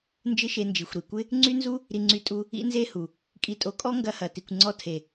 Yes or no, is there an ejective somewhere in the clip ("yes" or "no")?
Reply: yes